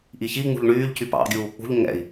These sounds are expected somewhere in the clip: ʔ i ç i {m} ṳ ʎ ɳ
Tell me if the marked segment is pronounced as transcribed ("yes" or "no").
no